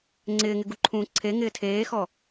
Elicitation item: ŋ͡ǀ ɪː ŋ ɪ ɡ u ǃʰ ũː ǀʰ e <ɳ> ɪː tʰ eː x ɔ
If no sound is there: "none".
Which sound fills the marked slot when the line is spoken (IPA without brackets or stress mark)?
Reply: ŋ